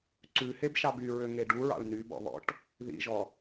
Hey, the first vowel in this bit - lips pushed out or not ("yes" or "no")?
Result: yes